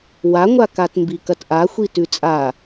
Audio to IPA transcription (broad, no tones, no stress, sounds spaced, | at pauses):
w a ŋʷ a k a t m b i k ɐ t ʔ a xʷ i t ʉ t͡sʼ a